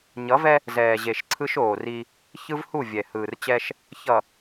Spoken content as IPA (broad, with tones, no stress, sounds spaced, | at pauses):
ɲ ʌ˨˦ v ɛ˦ | z ɛː˨ ʑ e˨ ʃ ǀʰ ɯ˦ ʃ oː˨ r i˦ | ç ɯ˦ v h u˦˨ vʲ ɛ˨ h ɯː˨ r t͡ɕ ɛ˦ ʃ | ç ʌ˨